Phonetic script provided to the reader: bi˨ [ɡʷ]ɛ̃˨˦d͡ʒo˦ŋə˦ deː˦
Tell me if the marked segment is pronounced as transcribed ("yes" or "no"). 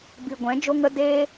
yes